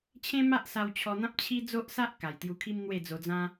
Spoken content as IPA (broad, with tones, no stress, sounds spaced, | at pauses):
t͡ɕʰ ẽ˦ m a˦ ʔ s a˧ w t͡ɕʰ ɔ˧ n̪ ã˦ p̚ t͡ɕʰ i˦ d͡z o˦ ʔ s a˦ ʔ k a˨˩ j t̪ j u˧ kʰ i˦ m n̪ w e˥˧ d͡z o˧ d͡z ã˦